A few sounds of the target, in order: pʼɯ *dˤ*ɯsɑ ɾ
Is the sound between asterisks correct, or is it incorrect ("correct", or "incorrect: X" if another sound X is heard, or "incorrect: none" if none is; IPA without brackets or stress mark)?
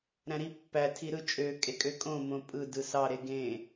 incorrect: d